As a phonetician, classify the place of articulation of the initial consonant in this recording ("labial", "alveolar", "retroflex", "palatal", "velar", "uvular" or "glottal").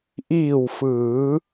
glottal